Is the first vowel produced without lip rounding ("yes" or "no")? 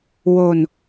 no